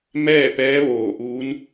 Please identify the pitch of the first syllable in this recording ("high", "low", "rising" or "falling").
falling